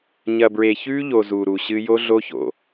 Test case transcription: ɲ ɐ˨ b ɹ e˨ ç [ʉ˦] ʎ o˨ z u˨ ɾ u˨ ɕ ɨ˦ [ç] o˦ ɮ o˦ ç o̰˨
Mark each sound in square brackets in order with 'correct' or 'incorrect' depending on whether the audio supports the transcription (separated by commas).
correct, incorrect